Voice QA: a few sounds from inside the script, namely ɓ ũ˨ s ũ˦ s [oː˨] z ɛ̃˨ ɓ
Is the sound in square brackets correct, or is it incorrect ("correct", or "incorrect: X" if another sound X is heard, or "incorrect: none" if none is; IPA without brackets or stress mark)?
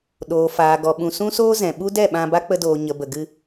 incorrect: oː˦